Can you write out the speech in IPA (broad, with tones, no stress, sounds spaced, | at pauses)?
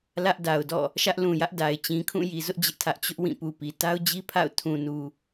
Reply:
l ä˦ ʔ d a˨ ʊ̯ d ɔ̰˦˨ | ʃ ä˦ ʔ l ũ˨ j ä˦ ʔ d a˨ ɪ̯ t͡ɕ ĩ˨ kʰ ũ˦˨ j i˨ z ʊ˦ ʔ d͡ʑ ɪ˦ ʔ tʰ ä˦ ʔ t͡ɕ ʊ˦ ʔ w ĩ˦˨ p u˨ p i˨ t a˦ ʊ̯ d͡ʑ i˦ pʰ a̰˦˨ ʊ̯ tʰ ũ˨ n u˨